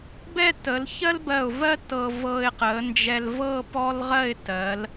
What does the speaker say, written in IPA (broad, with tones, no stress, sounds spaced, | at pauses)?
b ɛ˥˧ t ə˩˧ l ç ɜ˥ l b ɜ˧˩ ʊ̯ v ɜ˥ t ɤ˧ v ɤ˧ ɪ̯ q ə˩˧ n d͡ʒ ɛ˧ l v ɤ˥˧ p ɔ˥ l ʁ ɜ˥˧ ɪ̯ t ɜ˩˧ l